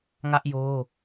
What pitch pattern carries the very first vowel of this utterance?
high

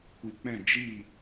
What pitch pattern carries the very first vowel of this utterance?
low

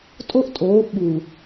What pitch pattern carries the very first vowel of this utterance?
high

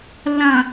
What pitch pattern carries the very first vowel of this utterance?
low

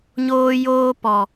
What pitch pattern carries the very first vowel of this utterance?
high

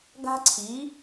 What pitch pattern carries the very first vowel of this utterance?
high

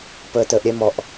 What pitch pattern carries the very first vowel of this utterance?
low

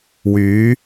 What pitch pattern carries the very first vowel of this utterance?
rising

